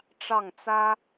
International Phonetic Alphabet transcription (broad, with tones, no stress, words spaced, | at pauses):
ʈ͡ʂɑ˥˩ŋt͡sä˥